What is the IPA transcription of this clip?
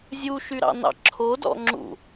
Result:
zʲuʃyɾɑ̰nɑ̰ ǁʰodɔ̰ŋ͡ǁṵ

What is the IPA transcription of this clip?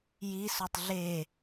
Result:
jisotˤ ɮe

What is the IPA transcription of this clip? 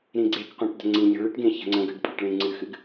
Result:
ɾĩɡ͡ǀekqʷẽʈ də̤ŋ͡ǀĩɲə̤ ɭɨʈɡẽ çə̤ŋ͡ǀə̃ɡɨɖ pʼəʈɭĩŋ͡ǀɨxɨɡ

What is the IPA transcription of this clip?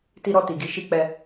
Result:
ti˧ɾɔ˧ti˨ɡi˨˦ ʃi˦k͡pɛ˧

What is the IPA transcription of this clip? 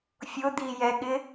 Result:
fʲʊd̪ijɛɠɪ

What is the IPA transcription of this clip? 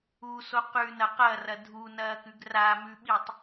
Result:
uso qʉnɐ qɐrɐ dʱunɐːkʉɡ ramʉɓitˤ

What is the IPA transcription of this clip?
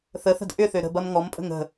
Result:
θəθə̤d ʔʏθø ɾə̤bɐm ŋɔmpʼə̤ŋ ə̤

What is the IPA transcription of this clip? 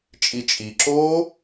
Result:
t͡ʃʼit͡ʃʼiǁoː

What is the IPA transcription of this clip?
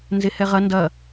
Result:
nzehɛʁɐ ndɐ

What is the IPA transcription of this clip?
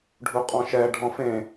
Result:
ɖʱuqʼɔ̃ʃɛ ɖʱɔ̃fẽ

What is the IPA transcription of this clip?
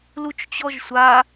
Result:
lut͡ʃt͡ɕɔʒsʷa

